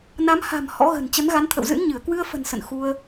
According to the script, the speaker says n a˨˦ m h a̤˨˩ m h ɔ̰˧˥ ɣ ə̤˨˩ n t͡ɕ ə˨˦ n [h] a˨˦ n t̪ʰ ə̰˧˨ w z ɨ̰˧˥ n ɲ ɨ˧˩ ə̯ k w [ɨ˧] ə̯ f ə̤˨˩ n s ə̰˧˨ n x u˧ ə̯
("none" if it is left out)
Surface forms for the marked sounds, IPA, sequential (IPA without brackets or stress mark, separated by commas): ɣ, ɨ˧